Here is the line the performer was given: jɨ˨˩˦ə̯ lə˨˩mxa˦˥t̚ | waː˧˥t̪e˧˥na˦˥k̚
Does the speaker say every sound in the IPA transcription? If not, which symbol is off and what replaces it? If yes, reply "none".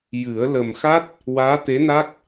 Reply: none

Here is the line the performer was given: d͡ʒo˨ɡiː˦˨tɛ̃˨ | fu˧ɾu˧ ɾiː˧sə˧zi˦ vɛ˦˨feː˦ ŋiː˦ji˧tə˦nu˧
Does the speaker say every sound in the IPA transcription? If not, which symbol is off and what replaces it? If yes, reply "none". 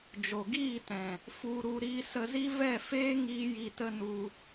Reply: none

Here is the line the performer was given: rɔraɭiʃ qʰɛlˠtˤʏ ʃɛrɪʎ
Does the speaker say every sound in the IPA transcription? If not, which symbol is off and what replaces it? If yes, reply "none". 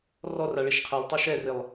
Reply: ʎ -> lˠ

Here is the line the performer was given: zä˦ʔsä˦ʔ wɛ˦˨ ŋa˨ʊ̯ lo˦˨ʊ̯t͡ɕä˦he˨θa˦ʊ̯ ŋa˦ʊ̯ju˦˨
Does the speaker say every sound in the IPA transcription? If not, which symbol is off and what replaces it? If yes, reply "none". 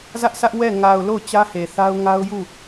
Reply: none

